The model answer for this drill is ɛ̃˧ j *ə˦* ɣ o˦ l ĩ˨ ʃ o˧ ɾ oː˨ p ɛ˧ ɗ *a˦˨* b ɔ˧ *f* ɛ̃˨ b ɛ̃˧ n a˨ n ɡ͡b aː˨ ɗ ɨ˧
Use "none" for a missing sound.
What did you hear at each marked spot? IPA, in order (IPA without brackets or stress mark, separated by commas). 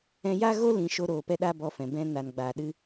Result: a˦, a˦, f